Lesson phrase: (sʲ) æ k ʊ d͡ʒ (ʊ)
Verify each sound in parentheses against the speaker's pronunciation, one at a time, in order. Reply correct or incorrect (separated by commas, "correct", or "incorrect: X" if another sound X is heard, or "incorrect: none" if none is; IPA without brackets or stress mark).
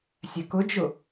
correct, correct